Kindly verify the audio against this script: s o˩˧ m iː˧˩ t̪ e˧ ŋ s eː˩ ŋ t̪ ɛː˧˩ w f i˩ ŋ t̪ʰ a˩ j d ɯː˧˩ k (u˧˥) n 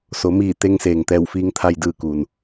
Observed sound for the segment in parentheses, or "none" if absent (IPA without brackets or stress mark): u˩